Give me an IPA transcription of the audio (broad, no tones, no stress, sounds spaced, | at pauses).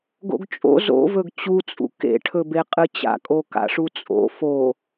ɡ o̰ ɡ t͡ʃʼ o̰ z o̰ v ɵ ɡ t͡ɕ u t͡sʼ ṵ k ḛ ʈʰ ɵ b e qʼ ɨ t͡ɕ a̰ kʼ o k a̰ ʂ u t͡sʼ o̰ f o